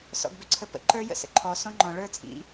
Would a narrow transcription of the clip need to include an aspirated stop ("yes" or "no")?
yes